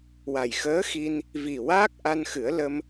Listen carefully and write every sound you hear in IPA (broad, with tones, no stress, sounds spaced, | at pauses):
w a˨˩ j x əː˧˥ x i˧ n | v i˨˩ w aː˦˥ k̚ ʔ a˧ n x ɨ˨˩˦ ə̯ l ə˧ m